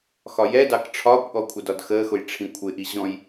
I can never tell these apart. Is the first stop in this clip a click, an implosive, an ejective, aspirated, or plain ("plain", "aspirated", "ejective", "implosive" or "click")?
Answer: plain